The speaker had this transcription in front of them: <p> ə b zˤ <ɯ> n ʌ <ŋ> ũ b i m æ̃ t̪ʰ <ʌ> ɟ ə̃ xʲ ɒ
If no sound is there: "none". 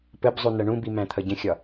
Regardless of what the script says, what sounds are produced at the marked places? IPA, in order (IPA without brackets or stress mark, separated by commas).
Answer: p, u, ɳ, ʌ